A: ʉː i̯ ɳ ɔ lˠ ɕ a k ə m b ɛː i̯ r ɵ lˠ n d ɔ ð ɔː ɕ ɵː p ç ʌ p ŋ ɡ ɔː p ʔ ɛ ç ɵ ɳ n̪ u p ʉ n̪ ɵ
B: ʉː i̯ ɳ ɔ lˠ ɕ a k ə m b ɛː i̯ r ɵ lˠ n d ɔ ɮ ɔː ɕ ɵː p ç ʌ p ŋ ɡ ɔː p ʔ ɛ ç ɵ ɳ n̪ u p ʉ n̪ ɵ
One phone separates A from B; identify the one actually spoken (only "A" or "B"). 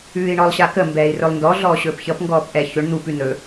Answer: B